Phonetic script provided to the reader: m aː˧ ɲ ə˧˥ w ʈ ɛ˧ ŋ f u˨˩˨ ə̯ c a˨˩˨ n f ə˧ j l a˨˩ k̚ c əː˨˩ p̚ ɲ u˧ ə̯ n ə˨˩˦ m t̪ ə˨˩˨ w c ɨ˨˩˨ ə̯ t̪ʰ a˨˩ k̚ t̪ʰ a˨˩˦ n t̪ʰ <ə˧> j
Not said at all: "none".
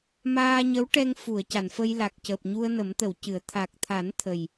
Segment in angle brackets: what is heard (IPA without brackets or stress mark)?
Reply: ə˨˩